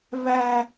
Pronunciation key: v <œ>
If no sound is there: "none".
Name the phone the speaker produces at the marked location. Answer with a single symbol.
æ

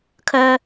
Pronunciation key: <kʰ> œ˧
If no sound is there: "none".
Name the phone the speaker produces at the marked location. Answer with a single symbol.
kʰ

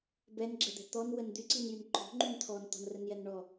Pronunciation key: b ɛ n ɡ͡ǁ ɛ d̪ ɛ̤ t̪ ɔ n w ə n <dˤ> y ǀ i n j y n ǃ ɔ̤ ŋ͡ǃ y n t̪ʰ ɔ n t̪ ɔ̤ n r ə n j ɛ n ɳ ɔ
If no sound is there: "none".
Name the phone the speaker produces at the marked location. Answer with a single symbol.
d̪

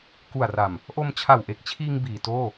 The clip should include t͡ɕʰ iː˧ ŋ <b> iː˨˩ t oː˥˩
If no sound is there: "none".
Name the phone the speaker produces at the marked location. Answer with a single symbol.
b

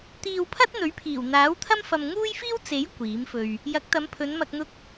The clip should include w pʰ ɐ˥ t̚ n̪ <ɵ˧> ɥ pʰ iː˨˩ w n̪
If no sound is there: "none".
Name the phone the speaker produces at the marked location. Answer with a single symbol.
ɵ˨˥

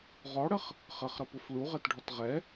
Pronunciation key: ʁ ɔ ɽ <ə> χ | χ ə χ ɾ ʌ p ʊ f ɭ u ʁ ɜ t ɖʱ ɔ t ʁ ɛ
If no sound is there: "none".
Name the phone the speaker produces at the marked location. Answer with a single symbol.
ə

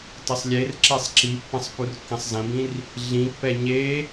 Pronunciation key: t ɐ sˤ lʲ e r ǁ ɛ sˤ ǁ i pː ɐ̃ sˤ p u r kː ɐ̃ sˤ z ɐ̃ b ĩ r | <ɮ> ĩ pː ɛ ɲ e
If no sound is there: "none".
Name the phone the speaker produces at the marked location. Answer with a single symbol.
ɮ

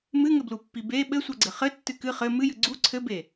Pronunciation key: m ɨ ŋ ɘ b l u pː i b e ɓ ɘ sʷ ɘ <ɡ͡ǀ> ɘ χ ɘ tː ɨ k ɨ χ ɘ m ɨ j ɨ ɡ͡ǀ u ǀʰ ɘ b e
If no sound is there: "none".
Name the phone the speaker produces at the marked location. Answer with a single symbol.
ɡ͡ǀ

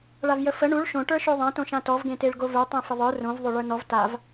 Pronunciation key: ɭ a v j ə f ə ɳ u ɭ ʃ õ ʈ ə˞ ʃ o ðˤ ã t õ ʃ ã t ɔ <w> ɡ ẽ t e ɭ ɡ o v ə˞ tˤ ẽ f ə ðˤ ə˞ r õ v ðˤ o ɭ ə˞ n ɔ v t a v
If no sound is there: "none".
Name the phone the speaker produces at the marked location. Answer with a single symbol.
v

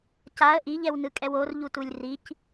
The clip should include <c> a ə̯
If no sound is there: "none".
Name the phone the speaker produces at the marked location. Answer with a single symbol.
c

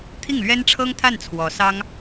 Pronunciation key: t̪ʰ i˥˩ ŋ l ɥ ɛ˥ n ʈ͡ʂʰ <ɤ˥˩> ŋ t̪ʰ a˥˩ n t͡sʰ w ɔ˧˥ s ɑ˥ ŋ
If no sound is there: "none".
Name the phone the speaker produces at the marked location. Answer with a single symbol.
ɤ˥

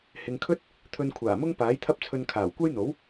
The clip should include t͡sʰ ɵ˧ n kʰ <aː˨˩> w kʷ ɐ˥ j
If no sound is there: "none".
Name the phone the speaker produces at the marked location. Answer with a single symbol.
aː˨˩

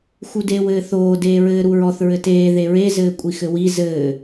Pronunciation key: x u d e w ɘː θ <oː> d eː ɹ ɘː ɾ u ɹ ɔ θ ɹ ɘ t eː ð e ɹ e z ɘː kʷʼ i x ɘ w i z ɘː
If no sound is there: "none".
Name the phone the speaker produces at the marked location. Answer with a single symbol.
oː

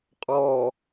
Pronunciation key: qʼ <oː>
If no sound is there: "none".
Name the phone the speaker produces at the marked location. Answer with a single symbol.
ɔː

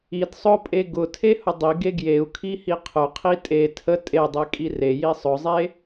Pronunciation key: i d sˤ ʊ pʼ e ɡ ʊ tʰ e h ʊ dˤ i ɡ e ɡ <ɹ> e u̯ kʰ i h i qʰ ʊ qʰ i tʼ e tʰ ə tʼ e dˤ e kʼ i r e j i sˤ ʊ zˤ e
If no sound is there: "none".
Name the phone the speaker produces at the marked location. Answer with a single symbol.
j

